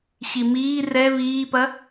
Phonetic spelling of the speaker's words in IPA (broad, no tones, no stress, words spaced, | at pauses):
ɕimiː rɛ βiːpɐ